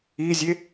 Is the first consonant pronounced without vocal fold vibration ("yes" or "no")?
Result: no